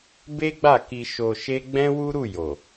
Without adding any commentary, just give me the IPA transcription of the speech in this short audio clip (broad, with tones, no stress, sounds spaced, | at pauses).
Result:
b e˦ ɡ͡b a˦˨ k i˧ ʃ o˧ ʃ e˦ ɡ͡b ɛ̃˦ w u˦ ɾ u˦˨ j o˨